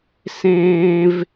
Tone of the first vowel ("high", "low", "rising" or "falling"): high